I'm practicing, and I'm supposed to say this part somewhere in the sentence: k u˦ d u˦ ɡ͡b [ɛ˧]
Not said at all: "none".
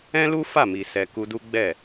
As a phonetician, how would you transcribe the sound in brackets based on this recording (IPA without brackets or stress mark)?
ɛ˦˨